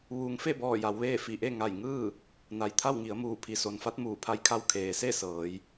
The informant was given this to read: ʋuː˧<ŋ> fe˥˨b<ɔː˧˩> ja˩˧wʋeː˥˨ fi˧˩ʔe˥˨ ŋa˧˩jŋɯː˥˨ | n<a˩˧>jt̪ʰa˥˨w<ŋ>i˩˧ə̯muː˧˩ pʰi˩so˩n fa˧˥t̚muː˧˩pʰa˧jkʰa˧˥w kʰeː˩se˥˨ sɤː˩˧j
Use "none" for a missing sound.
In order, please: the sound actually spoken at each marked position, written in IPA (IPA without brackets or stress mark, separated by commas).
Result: ŋ, ɔː˧˩, a˩˧, ŋ